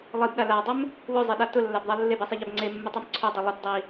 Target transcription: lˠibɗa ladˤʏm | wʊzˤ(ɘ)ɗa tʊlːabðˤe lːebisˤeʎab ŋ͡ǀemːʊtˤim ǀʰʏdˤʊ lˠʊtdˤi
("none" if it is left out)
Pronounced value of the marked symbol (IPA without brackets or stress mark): e